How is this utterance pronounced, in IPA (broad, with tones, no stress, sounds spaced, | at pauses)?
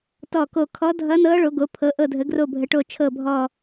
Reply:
t ɔ˧˩ k o˧˩ kʰ ɔ˧˥ dʱ ʌ˧˥ n ɤ˧˥ ɭ o˩˧ ɡ o˩˧ pʰ ɤ˩˧ ʔ ɤ˧˩ dʱ ə˩˧ ɡ r o˧˩ bʱ ə˩˧ ʈ o˧˩ t͡ʃʰ ɤ˧˩ bʱ ɔ˧˩